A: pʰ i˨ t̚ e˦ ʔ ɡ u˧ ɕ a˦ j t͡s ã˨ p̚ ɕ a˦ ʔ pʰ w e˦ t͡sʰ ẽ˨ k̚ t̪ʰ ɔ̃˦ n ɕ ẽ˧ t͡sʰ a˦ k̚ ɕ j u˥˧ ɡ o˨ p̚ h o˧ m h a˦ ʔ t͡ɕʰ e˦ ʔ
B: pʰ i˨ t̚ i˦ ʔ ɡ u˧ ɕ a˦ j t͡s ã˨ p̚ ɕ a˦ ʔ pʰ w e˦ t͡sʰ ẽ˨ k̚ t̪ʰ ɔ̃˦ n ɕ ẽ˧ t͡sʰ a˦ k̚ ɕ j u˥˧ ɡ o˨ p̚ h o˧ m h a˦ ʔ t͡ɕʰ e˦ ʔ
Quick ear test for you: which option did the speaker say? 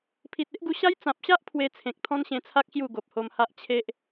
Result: A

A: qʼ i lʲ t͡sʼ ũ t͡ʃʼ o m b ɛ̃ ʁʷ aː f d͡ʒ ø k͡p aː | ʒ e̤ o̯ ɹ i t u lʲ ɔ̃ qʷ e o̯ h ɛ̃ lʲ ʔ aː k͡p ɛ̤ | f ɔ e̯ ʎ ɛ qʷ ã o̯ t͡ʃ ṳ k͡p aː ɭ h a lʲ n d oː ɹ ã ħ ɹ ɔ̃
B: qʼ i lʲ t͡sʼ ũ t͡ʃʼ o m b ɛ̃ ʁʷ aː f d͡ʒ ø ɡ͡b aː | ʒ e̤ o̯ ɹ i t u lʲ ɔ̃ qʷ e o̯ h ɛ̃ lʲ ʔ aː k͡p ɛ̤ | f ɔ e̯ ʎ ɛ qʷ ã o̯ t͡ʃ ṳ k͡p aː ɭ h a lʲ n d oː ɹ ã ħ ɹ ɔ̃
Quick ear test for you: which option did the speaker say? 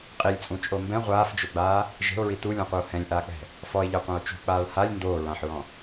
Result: B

